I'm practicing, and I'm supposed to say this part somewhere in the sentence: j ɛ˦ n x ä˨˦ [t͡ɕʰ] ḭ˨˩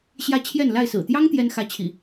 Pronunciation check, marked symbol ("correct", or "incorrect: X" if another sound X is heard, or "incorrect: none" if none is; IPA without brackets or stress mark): correct